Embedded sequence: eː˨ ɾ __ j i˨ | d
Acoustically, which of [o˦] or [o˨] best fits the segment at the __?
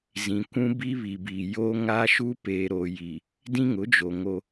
o˨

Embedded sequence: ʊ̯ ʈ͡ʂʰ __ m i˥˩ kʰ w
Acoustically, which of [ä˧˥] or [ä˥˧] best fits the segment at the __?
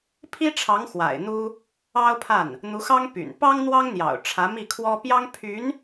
ä˧˥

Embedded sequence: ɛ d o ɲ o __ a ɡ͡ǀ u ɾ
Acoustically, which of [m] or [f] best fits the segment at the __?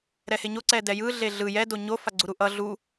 f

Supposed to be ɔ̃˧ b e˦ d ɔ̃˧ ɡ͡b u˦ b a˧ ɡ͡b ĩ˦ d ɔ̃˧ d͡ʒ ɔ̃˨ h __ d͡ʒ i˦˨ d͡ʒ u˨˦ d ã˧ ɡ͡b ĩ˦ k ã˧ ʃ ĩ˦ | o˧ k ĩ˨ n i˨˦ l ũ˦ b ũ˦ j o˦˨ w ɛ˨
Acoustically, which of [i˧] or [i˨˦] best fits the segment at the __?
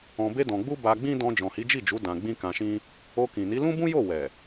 i˨˦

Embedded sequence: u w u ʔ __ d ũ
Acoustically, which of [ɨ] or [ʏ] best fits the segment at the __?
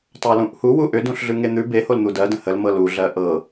ʏ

